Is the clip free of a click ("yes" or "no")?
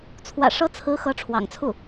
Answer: yes